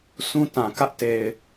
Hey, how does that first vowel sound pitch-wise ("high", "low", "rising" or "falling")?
high